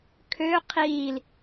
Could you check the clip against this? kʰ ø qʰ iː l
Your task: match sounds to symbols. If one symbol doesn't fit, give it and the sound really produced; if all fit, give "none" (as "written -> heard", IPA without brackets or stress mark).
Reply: none